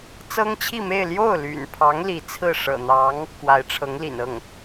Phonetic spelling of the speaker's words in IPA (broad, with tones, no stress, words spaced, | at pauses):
t͡sɤ˥ŋt͡ɕʰi˥˧me˥˧ɪ̯ ljo˥˩ʊ̯ly̰˨˩npʰɑ˧˥ŋ li˧˥t͡sʰɹ̩˥˩ ʂɤ̰˨˩n̪ɑ˧˥ŋ | kwa˧˥ɪ̯ʈ͡ʂʰɤ˧˥ŋlḭ˨˩nɤ˥˩ŋ